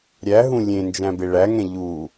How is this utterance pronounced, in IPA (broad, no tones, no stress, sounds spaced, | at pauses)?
ɾʲ æ ɦ ũ lʲ ẽ n d͡ʒ æ̃ b e ɭ æ ŋ ɛ̃ ʎ u